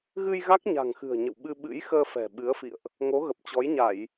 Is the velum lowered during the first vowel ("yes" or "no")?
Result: no